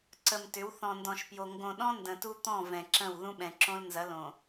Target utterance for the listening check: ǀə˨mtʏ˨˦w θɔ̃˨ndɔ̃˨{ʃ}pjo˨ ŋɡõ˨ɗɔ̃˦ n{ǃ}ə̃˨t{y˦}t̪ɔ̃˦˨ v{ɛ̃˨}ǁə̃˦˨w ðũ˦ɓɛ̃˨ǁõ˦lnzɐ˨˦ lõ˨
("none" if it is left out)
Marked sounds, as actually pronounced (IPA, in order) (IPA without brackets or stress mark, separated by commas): ʃ, d, u˦, ɛ̃˨